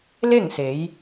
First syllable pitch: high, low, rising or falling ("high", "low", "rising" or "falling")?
falling